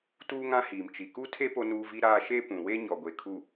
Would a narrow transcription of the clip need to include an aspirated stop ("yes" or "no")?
yes